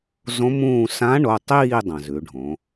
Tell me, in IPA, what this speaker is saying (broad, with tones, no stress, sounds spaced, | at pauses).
z õ˧˥ m ũː˦˨ s ã˧˥ ɳ o˩˧˩ tˤ iː˦˨ dˤ ɐ̃˩ z ʉ˩˧ ɖʱ õ˩˧